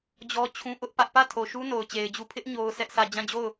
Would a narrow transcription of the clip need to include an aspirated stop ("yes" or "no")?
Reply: yes